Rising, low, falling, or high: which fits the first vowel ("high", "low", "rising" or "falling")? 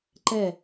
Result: falling